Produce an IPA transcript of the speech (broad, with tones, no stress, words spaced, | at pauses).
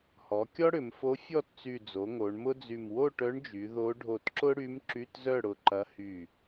hɔ˩˧ kʲɔ˥ɽʏ˩˧mfo˧˥ fʲɔ˥˨tt͡sy˧˩ d͡zo˩˧ ŋo˩˧ɳmʊ˥d͡zy˧˩m wo˥˨ʈœ˧˥ɳd͡ʒy˩˧ ðo˧˥ ɖʱo˧˩tǁʊ˥ɽy˧˥m ǁy˧˥˧tzœ˥˨ɽʊ˧˩ ǃɐ˧˥hy˧˩